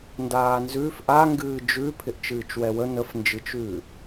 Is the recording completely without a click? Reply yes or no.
yes